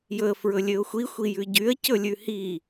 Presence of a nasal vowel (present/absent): absent